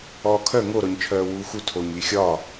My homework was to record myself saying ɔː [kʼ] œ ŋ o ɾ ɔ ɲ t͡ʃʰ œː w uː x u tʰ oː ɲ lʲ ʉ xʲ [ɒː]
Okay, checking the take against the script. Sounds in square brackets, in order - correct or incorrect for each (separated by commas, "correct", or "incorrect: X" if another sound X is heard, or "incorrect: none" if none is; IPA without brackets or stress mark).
incorrect: kʰ, correct